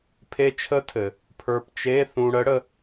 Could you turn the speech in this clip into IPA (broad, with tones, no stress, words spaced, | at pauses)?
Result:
pʰe˧t͡ʃʰə˧˥tʰɘ˩ | pʰə˞˧pt͡ʃe˧˥˧ θũ˧ɽə˧˥ɽə˧